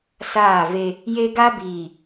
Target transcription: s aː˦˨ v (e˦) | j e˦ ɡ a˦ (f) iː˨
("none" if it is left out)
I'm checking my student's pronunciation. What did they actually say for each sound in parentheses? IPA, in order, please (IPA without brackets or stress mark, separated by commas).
e˦, b